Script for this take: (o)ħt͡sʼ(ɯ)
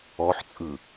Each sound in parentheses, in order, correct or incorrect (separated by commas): incorrect, correct